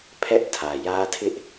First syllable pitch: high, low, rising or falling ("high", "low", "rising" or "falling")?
high